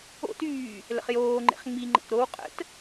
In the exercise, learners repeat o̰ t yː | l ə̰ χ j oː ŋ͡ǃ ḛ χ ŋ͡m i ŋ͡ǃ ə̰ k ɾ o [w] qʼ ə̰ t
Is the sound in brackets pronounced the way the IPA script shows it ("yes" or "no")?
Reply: yes